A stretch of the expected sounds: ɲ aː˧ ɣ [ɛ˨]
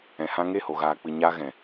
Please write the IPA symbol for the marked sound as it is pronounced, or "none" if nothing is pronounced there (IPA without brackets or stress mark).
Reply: ɛ̃˨